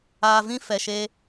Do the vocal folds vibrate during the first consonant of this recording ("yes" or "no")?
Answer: yes